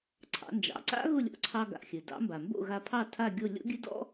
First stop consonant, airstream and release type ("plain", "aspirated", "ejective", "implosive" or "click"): click